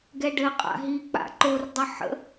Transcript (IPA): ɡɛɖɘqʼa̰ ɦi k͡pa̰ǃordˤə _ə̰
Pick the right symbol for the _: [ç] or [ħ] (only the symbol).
ħ